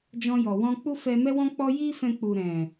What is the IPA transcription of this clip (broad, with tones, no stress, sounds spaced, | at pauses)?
d͡ʒ ɔ̃˧ j ɔ˨ w ɔ̃˧ k͡p u˦ f ɛ˧ m ɛ˧ w ɔ̃˧ k͡p ɔ˧ j i˦ f ɛ̃˧ k͡p u˨ ɾ ɛ̃˨